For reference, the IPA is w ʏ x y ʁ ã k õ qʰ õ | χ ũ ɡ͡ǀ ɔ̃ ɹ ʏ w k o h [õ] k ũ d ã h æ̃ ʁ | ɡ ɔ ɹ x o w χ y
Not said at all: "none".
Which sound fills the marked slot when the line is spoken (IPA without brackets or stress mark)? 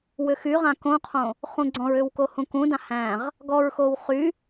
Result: ũ